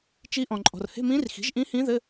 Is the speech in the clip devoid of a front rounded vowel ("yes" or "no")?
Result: yes